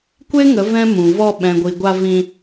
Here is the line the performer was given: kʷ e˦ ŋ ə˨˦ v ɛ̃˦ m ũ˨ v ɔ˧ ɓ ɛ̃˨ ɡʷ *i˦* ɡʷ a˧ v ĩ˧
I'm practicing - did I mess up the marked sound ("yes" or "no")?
yes